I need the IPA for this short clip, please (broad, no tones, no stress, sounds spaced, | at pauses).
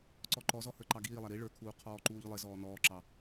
ǀ ɔ ǃ ɔ z ɔ h ə˞ ǃ ɑ ɡ iː lˠ æ ɾ i ɭ ə˞ kʰ uː qʰ ɔː ǃ uː ʎ lˠ ɪ z ɔː n ɔː ǁ ɑ